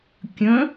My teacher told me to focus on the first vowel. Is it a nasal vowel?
yes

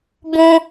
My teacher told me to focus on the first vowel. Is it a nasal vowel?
yes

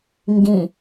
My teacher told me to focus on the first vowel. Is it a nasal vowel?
yes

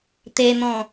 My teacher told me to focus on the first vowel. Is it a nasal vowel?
no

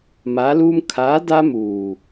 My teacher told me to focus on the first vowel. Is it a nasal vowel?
no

